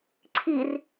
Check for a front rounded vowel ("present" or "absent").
absent